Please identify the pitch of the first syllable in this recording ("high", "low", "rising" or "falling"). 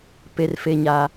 high